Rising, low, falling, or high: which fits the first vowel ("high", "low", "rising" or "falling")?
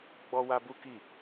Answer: high